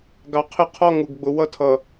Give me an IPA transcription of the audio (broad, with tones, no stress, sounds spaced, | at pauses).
ɡ ɑ˨ qʰ ɪ˦˨ qʰ ɔ˦ ŋ u˨ ɡ ɡ͡b ʊ˨ w ʌ˦ tʰ ʌ˨